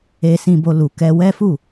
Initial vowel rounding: unrounded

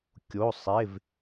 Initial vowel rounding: rounded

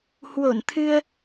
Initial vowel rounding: rounded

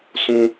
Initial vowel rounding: rounded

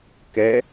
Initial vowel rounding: unrounded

